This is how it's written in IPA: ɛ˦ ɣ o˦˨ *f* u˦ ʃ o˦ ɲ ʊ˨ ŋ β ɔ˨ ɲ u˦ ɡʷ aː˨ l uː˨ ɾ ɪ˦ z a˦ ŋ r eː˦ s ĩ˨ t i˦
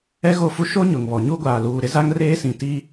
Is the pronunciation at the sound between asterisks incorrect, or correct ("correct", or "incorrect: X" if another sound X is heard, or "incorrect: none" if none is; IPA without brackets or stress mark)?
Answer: correct